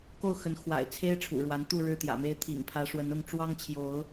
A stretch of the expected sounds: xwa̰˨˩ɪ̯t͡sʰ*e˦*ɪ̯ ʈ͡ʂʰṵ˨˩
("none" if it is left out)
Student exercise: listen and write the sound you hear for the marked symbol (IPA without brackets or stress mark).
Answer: e˦